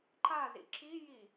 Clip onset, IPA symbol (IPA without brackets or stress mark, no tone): ǃ